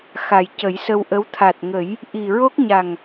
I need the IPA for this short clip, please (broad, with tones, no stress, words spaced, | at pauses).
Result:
xa˨˩jcə˨˩˦jsə˧wʔə˧˥w t̪ʰa˨˩t̚ŋə˨˩˦j | ʔi˨˩ɹo˦˥k̚ɲa˨˩ŋ